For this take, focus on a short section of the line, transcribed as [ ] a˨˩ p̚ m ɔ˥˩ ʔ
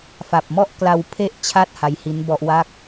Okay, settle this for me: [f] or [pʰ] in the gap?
f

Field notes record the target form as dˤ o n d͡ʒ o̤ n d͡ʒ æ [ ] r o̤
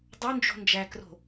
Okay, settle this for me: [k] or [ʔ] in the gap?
k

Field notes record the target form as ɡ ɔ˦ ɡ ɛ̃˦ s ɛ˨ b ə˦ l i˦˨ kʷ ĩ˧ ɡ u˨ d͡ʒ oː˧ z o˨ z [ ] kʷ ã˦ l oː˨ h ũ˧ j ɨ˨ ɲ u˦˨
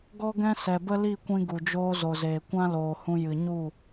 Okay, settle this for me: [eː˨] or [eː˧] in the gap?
eː˨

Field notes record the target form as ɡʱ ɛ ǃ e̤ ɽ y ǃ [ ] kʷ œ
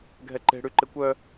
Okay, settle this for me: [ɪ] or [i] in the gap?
ɪ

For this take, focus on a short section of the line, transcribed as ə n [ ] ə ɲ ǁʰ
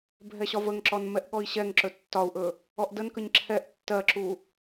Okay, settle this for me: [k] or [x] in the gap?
k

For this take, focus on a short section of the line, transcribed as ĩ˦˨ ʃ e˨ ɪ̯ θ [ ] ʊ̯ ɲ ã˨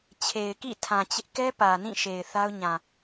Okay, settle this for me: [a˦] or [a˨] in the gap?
a˦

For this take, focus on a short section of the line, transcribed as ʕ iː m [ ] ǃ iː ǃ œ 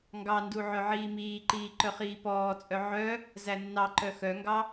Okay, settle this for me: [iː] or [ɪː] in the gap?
iː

